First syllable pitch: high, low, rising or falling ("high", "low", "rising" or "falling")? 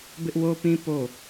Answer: high